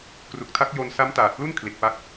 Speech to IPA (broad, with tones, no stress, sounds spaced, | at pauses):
k r u˨˩ k̚ tʰ a˦˥ k̚ j o˧ n s a˦˥ m t aː˨˩ t̚ p l u˥˩ n kʰ l i˨˩ t̚ p a˦˥ k̚